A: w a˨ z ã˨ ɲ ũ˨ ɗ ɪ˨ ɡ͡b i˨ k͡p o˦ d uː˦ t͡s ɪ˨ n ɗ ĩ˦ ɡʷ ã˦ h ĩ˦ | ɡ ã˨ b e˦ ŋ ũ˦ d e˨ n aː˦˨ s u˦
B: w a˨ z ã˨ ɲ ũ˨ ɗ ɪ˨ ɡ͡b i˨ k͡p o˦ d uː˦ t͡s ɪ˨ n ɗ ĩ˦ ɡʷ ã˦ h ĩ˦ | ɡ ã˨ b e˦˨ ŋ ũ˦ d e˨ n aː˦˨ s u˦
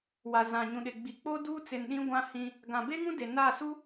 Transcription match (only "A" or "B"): A